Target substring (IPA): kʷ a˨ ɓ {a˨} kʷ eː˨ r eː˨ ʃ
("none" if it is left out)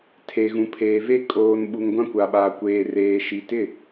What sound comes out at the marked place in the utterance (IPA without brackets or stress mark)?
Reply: aː˨